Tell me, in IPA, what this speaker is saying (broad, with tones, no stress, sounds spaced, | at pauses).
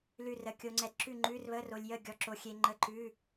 l ʉ˥˨ r ə˧˥˧ kʲ o˧ ŋ͡ǀ ɛ˧ d ǁ ʉ˥˨ ŋ͡ǃ ʉ˧˥˧ r β ə˧˥˧ r o˧ lʲ j ə˥˨ ɡʲ ɔ˧ ǁ o˧ xʲ e˧ ŋ͡ǃ ə˧˥˧ ǃ ʉ˧˥˧